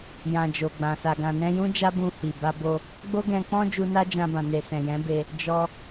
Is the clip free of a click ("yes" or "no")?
yes